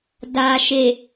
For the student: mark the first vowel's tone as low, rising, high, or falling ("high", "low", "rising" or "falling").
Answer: low